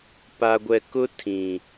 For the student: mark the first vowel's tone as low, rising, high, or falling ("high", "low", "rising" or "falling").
low